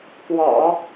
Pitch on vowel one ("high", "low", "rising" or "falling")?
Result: low